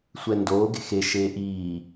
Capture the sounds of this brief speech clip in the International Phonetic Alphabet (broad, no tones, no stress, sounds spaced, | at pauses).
sʷ ɛ n d oː ɡ e̤ x e ʃ eː ʔ iː